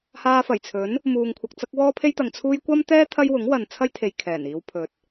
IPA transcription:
haː˧fɐ˨˩jt͡sʰɵ˨˥n | muː˨ŋkʷʰɐ˨k̚t͡sɐ˥k̚ wɔː˥pʰe˥jt̪ɐ˨ŋ t͡sʰuː˥j kʷɐ˥mt̪ɛː˥ t̪ʰɐ˥jwʊ˨˥ŋwɐ˨n t͡sʰɐ˥jt̪ʰe˨j kʰɛː˨˩niː˧wpʰɵ˨t̚

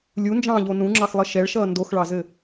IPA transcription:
lʲund͡ʒɑ̃ːʎo nũŋ͡ǁɑxlˠɘ ʃɛɭʃʌː ndoxɭɑzɘ

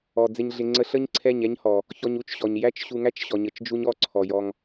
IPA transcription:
ɔ˨d͡zɪ˧ɲɮɪ˧ ŋ͡ǀə˧ɬə˦ɲǀʰɛ˦˨ɲ ɛ˦ɲhɔ˨ | çɔ˧ɲu˦t͡ʃɕɔ˨ɲ jæ˦t͡ʃɕu˧ŋæ˦t͡ʃ ɕɔ˨ɲə˨t͡ʃ d͡ʒu˦ɲɔ˦˨ ǀʰɔ˨jɔ˧ŋ

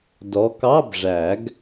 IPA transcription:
dɔ˨˦kɑ˧˥˧b ʐæ˨˩˦ɡ

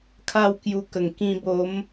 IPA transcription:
kʰa˥˧wkju˧kə˨˩ŋ kĩ˧ bo˨˦m

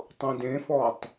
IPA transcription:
tˤũdẽfɔtˤ

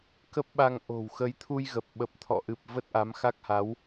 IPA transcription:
kə˦˥p̚ɓa˧ŋ ʔo̤˨˩w xə˨˦jt̪ʰu˧jɣə˨˩p̚ ɓə˨˩p̚t̪ʰɔ̰˧˨ʔɨ˨˩p̚ və˦˥t̚ʔa˨˦mxa˦˥k̚ha˨˦w

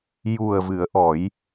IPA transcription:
ju˨˩ə̯ vɨ˨˩˦ə̯ʔɔ˨˩˦j

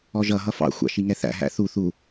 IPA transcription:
ɔʒʌ ɦʌfɑ̰ xʷɑ̰ʃiŋɛθæ̰ ɦæ̰θu θu

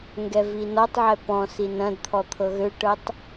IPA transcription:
ŋɡɛvinɔtˤʕɛ pɔ̃s inɐ̃dt̪ʰɔ t̪ʰɤɣøʈɤtˤ

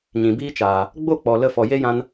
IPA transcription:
ɲĩ˨biː˦t͡ʃaː˨ | ɡ͡bo˦˨k͡pɔ˨ lə˧fɔ˨ je˦jã˧n

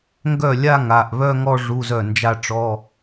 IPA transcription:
ŋɡœ˥˩ lʲa˥˧ ŋa˩˧˩ʔβœ˥˧ŋɔ˥˧ ʐu˧˥˧zœ˥˩nd͡ʒa˥˧ʈ͡ʂɔ˧˥˧

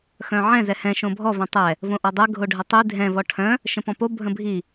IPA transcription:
xœ̃ʕɛ̃ zɛhɛ̃ ʃõbʱɔ vɛ̃tˤɛ | võʔɔdˤɛ ɡʱoɖʱətˤi dʱɛ̃ vɔʈʰœ̃ | ʃə̃pɔ̃po bʱə̃bʱi

